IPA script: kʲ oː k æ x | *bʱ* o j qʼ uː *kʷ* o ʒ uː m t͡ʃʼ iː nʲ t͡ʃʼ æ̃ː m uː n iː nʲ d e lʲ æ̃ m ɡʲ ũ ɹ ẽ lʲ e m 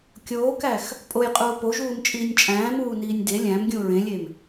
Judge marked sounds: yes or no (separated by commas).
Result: no, no